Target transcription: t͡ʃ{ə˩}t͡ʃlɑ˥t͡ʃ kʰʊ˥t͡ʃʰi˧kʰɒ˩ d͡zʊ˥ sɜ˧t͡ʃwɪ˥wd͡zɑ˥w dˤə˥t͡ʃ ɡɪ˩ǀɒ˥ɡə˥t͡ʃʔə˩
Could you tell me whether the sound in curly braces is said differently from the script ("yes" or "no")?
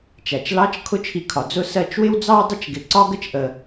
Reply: yes